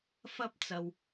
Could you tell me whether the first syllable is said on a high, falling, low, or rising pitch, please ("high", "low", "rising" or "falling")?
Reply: high